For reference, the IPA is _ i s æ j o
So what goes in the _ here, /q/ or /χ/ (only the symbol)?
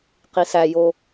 q